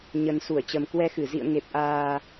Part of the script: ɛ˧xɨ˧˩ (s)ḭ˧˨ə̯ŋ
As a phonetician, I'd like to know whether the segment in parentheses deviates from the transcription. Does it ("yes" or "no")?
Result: yes